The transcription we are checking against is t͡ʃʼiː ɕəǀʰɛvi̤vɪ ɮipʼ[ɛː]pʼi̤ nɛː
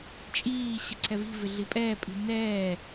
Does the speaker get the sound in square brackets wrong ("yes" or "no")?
no